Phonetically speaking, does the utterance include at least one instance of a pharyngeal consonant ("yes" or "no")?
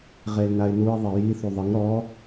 no